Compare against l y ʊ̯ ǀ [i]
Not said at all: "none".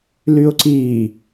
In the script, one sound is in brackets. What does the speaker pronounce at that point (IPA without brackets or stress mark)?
i